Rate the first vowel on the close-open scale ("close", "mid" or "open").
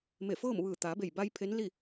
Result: mid